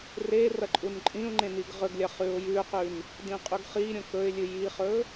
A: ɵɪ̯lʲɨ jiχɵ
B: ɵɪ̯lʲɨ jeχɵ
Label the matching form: A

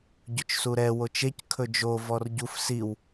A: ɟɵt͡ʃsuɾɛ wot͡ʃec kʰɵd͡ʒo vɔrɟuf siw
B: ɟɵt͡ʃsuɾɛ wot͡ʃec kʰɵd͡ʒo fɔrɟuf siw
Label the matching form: A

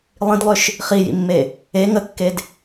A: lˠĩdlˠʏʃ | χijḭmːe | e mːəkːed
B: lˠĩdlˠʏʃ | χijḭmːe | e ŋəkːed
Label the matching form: B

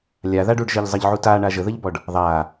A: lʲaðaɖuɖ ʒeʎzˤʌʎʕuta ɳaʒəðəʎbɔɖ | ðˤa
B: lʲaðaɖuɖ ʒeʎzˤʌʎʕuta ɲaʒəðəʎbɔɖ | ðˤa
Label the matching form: A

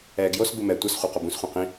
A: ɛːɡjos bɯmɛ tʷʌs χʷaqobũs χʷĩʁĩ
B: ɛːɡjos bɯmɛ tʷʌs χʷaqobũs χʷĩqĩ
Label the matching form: B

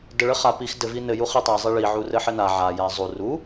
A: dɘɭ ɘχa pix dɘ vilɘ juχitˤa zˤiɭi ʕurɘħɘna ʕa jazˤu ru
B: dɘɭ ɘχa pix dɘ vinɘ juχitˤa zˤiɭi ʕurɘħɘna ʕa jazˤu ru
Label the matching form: B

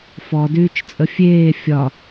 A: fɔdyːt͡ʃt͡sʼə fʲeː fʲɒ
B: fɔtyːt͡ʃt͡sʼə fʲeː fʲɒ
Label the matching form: A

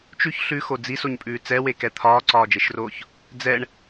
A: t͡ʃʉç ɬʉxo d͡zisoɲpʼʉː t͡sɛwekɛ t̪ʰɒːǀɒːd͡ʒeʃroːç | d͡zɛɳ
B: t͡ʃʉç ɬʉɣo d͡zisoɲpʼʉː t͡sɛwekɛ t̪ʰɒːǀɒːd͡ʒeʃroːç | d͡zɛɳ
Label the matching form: A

